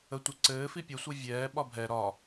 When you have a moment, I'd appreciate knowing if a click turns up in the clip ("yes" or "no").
yes